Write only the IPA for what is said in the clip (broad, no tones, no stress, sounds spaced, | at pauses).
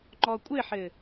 ŋ͡ǃ ɔ kʷʼ ɘ ħ ɘ